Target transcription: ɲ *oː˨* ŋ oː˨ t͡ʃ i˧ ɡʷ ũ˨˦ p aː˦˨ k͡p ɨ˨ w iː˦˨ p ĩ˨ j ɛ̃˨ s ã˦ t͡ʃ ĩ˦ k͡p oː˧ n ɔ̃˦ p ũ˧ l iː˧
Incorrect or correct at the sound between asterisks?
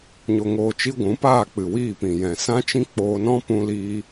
incorrect: o˨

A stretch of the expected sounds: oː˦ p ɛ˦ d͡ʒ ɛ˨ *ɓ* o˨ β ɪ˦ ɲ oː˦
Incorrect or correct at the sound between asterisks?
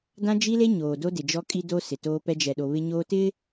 incorrect: ɗ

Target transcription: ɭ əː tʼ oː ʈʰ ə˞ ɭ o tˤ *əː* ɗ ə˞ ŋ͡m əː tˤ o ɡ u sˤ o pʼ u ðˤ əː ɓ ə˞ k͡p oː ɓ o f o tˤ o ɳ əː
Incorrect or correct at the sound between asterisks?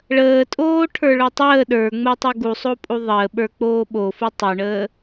correct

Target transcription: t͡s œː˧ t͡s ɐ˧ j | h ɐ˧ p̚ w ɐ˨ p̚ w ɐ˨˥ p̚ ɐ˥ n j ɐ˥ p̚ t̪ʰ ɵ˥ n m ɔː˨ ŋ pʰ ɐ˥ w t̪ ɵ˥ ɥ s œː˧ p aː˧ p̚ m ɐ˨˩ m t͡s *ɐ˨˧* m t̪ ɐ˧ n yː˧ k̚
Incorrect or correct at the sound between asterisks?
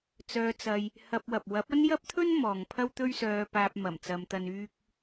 correct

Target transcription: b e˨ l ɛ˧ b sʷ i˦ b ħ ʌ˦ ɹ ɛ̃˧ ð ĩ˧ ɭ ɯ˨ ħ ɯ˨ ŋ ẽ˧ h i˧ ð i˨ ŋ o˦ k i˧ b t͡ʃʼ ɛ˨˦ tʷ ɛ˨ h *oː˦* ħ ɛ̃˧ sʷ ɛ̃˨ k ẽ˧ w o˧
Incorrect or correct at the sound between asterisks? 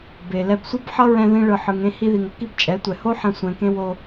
incorrect: o˦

